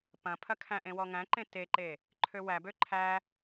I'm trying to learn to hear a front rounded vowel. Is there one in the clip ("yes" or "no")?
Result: yes